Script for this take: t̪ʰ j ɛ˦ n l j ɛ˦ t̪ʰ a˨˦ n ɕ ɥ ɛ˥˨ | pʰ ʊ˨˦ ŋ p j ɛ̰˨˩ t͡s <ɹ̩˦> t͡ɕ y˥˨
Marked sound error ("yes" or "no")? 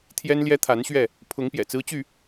no